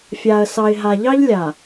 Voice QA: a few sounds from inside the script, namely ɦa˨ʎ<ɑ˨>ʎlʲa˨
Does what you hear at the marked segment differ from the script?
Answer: yes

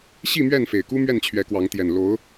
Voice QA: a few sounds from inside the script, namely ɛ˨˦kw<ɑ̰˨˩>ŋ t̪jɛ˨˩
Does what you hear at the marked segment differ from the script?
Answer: yes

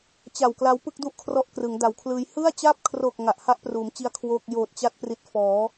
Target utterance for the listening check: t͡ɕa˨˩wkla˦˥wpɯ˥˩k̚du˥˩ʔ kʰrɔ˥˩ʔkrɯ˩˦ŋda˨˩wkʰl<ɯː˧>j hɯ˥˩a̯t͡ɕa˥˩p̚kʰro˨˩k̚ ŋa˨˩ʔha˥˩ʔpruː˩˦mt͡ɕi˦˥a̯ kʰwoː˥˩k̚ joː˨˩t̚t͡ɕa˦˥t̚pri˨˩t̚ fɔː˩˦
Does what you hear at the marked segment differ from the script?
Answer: no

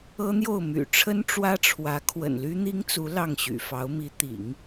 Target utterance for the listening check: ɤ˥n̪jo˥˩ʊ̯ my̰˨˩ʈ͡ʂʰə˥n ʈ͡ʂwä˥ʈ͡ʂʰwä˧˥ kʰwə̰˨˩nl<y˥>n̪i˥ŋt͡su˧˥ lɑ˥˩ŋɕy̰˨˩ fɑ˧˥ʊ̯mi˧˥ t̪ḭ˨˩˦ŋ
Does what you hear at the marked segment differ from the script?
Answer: no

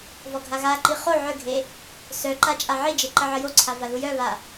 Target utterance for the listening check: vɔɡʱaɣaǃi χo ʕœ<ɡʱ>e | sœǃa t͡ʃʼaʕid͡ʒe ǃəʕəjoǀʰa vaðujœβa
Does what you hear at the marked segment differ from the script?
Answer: no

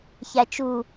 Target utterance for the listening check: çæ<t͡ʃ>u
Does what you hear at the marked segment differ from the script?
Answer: no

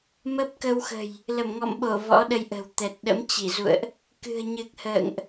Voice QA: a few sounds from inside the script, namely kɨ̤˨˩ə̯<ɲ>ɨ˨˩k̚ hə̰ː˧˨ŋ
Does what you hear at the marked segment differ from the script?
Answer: no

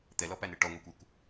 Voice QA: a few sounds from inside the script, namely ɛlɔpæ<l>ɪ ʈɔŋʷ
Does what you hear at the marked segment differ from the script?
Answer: yes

